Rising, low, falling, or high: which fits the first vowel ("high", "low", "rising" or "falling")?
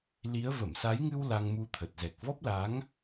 rising